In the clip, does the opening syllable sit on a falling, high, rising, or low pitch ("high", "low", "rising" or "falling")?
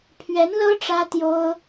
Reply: rising